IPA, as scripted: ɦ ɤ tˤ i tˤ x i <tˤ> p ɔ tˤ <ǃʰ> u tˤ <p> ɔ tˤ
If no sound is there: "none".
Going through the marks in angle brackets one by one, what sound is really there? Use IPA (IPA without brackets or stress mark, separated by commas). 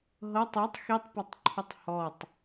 tˤ, ǃʰ, h